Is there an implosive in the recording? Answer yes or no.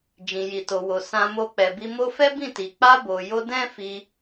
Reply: no